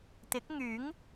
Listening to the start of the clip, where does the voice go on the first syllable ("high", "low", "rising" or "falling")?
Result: rising